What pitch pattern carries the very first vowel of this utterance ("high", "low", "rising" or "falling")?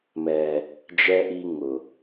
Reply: low